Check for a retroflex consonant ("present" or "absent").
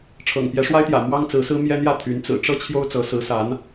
present